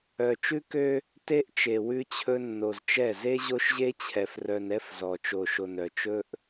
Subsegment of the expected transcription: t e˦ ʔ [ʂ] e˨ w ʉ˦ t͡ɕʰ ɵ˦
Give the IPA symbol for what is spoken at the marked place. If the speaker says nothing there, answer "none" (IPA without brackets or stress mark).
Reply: t͡ʃ